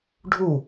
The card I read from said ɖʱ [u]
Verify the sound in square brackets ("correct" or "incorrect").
correct